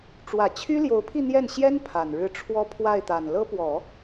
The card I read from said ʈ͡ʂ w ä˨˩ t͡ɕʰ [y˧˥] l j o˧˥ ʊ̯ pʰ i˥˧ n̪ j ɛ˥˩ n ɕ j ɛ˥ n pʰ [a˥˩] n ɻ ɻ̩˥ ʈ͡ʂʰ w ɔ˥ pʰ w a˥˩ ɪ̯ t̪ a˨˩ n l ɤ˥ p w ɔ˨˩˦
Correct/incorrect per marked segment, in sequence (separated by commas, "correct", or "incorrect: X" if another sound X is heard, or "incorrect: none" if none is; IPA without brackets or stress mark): incorrect: y˥, incorrect: a˨˩